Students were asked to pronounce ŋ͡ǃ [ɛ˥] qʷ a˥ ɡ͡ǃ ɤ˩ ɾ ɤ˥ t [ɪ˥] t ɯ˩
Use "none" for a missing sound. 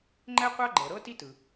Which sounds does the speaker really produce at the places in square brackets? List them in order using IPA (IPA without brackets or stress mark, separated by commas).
ɛ˥, i˥